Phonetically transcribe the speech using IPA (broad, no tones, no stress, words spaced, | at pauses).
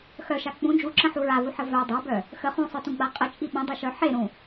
xœʃa k͡pũ d͡ʒuǁə̃ħu ɹavuħə vœ dˤabœ | xə χũsˤœtũɡ͡ba qʼət͡ʃʼi ɓə̃dˤiʃœ ħeɾũ